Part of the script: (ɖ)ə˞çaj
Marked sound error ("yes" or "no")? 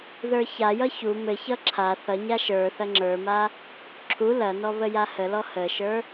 yes